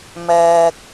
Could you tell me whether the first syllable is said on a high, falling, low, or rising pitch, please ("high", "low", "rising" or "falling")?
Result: low